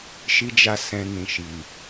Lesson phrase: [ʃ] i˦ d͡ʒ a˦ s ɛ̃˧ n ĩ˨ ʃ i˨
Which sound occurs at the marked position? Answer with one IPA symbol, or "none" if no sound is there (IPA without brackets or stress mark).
ʃ